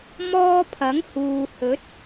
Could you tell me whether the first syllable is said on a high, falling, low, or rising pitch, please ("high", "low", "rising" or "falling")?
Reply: high